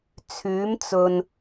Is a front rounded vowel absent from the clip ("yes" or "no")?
no